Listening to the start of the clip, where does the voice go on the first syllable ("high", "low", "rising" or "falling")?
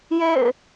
falling